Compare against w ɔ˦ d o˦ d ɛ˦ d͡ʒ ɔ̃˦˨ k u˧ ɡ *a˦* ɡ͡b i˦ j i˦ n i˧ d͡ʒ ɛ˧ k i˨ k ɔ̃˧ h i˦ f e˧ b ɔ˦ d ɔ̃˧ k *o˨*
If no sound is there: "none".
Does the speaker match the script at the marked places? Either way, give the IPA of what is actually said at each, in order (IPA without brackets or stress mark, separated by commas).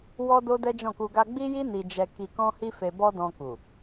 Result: a˦, u˨